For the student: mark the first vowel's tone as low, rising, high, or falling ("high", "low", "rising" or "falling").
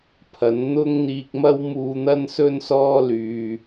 rising